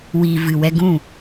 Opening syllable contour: low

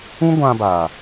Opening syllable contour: high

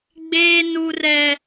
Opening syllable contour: high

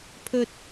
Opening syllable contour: high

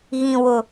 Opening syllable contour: low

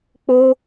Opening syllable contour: high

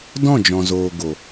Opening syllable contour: falling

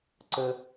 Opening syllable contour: high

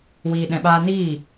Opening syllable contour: low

